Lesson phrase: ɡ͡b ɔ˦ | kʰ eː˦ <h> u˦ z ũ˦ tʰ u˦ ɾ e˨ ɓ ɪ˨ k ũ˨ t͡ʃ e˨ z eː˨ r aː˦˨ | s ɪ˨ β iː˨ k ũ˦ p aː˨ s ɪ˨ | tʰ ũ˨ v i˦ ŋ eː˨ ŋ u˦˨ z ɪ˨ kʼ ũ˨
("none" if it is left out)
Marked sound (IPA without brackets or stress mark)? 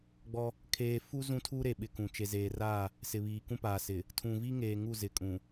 f